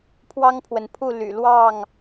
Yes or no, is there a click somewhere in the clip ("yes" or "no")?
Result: no